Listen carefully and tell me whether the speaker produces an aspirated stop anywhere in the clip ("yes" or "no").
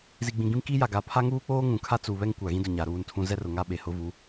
yes